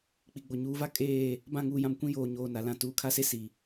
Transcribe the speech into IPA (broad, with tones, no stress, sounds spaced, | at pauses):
k͡p i˨ ɡ͡b o˨ ɲ uː˨ v a˦ kʼ eː˦˨ | b ã˦˨ ŋ uː˨ j ã˨ m kʷ ĩ˦ j oː˨ ɲ oː˨ n a˨ l ã˨ t uː˨ kʰ a˦˨ s e˦ s i˨